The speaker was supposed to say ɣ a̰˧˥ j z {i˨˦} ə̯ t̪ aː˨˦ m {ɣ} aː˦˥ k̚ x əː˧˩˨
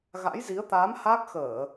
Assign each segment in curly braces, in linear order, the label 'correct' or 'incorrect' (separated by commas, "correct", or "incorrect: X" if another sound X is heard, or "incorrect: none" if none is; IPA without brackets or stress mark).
correct, incorrect: h